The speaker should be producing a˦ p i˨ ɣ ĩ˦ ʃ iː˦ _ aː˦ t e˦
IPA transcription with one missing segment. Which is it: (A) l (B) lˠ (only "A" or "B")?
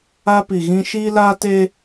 A